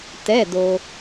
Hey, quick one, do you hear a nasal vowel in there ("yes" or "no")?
no